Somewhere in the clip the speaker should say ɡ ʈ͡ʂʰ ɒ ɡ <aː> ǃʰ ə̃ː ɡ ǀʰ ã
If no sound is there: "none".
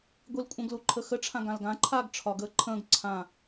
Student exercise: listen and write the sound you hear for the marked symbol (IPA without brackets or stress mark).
əː